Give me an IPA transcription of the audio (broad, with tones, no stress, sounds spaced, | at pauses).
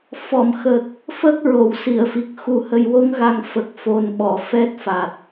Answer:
f ɔ˨˩˨ m x ə˨˩ k̚ | f ə˦˥ k̚ ɹ o˨˩˨ w s i˨˩˨ ə̯ f i˨˩ k̚ x u˨˩ h ə˨˩ j w o˧ ŋ ɣ a˨˩ ŋ f ə˨˩ k̚ f o˨˩ n ɓ ɔ˨˩˨ f ɛ˦˥ t̚ f a˨˩ t̚